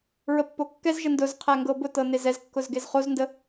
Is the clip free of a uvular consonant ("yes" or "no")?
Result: no